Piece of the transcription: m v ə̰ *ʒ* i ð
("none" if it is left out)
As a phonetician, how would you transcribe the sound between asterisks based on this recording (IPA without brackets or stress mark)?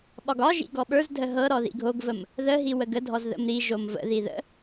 ð